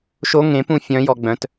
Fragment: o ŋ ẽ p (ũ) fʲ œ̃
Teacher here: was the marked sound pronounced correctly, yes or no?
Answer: yes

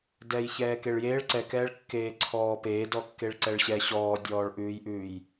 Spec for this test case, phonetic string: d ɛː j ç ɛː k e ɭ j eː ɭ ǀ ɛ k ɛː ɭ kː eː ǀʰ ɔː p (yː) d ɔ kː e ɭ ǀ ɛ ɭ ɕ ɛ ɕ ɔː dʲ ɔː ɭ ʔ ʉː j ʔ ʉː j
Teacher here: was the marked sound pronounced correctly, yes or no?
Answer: no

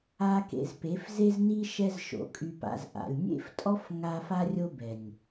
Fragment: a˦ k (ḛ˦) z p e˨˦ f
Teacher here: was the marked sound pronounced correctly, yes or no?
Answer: no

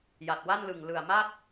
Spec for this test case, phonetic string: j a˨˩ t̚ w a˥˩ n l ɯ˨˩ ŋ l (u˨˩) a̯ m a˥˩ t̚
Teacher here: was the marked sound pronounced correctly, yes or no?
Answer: no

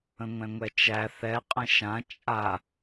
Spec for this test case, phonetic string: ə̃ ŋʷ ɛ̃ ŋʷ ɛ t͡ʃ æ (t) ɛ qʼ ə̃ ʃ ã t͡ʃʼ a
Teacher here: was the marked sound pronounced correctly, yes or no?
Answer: no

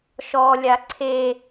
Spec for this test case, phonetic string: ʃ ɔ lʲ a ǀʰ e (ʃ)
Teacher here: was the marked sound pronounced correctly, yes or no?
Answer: no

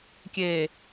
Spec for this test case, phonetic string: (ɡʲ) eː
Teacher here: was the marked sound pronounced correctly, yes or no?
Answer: no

